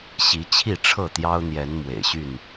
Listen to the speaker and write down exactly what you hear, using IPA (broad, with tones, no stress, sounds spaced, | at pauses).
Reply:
ɕ i˨˦ t͡ɕʰ i˥˨ ʈ͡ʂʰ ɤ˥˨ t̪ j ɑ˦ ʊ̯ n̪ j ɛ˨˦ n m w ḛ˨˩ ɪ̯ ɕ y˥˨ n